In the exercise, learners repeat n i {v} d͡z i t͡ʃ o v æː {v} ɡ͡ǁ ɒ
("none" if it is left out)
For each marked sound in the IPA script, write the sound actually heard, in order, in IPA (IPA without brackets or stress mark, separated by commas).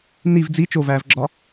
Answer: v, v